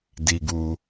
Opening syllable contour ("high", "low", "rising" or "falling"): low